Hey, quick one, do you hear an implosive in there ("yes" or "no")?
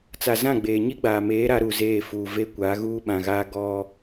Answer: yes